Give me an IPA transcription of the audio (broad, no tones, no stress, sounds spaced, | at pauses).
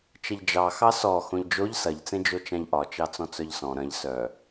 t͡ʃ ɐ ʎ d͡ʒ ɑ x ɑ s ɔ x õ ʎ d͡ʒ o ʎ s ɐ ʎ t͡s ẽ d͡ʒ o t͡ʃ ã ʎ ʔ ɒ t͡ʃ ɑ t͡s ɔ̃ t͡s œ ʎ s ɔ̃ ɾ ɐ̃ ʎ s œ